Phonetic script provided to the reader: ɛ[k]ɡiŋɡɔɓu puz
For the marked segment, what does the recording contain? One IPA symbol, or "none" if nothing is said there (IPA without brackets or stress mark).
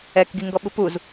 k